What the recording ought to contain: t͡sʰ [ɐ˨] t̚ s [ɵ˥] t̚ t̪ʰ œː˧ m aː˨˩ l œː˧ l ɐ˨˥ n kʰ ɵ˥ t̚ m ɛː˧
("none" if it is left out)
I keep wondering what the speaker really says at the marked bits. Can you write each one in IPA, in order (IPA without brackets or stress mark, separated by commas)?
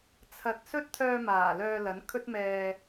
ɐ˧, ɵ˥